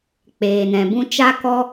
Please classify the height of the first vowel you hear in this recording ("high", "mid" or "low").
mid